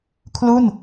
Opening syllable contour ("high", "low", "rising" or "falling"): falling